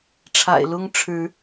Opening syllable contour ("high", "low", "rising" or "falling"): low